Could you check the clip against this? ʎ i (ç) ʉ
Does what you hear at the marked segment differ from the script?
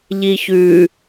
no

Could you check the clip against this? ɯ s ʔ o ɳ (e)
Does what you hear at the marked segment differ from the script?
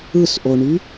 yes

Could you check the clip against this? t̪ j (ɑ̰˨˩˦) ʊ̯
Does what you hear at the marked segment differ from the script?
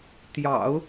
no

